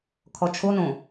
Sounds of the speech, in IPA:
kʰ ɔ t͡ʃʰ o n õ

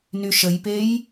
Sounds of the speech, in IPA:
n y ʃ ə j p e j

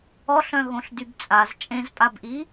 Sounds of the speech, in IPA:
ɔ ɬ œ̃ ɣ õ ɬ d y b t͡sʼ a z t͡ʃʼ ẽ z pʼ a b ʔ i

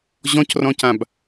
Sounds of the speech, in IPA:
ʑ ɔ̃ c r ɔ̃ c ã b

